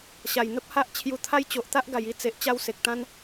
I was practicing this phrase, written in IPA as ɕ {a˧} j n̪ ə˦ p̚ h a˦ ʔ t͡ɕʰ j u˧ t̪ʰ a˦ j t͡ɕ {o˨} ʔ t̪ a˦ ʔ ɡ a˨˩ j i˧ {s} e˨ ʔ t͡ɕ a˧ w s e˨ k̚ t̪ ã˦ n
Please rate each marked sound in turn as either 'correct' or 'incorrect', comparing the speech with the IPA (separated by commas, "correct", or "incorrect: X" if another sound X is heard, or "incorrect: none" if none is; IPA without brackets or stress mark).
incorrect: a˨˩, correct, incorrect: t͡s